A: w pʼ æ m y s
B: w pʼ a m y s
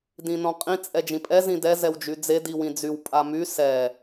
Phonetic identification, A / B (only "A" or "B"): B